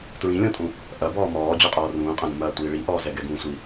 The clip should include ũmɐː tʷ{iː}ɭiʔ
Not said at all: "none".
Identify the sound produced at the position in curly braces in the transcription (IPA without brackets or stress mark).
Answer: iː